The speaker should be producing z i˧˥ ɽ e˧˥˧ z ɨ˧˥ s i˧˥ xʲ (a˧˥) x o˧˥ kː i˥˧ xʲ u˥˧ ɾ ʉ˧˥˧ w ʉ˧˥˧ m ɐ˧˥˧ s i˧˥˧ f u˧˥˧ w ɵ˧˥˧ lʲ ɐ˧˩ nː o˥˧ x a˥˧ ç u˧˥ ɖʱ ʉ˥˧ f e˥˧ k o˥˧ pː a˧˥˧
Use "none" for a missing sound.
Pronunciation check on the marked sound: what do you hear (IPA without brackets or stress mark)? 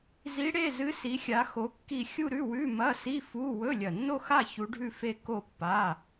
a˧˥